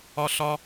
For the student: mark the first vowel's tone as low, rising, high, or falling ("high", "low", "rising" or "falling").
high